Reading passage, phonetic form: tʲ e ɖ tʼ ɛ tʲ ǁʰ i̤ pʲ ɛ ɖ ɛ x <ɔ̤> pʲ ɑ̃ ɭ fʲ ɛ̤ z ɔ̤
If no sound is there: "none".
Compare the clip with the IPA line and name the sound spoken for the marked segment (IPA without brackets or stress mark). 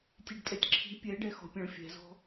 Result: ɔ̤